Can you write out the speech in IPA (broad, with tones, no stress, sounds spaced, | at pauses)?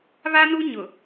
β a˦ n u˦ ɲ ʊ˨